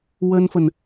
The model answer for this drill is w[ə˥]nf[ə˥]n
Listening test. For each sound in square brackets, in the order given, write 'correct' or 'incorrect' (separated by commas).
correct, incorrect